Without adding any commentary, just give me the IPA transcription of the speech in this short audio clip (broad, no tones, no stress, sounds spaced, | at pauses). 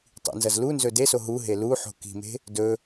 tˤ ḭ n z ɐ z l u n z ɵ d e s o ɦ u ɦ e l u ħ o̤ k i̤ m e̤ | d ɵ